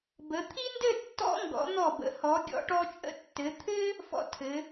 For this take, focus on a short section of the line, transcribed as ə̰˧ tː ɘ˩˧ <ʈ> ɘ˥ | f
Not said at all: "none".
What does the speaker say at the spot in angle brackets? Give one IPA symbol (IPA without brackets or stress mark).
t̪ʰ